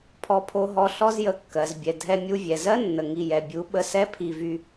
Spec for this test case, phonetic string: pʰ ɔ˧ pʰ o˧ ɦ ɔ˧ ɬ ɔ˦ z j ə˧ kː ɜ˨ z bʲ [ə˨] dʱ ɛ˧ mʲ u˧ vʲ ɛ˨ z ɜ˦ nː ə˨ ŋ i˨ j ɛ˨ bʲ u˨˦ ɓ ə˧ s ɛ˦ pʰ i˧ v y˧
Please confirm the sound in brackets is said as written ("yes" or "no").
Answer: no